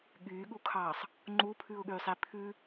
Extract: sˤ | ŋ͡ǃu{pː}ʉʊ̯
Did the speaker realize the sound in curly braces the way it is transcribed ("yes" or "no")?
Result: no